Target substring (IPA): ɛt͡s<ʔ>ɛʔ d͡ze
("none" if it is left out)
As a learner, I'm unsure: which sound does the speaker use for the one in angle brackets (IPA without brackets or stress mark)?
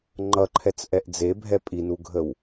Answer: ʔ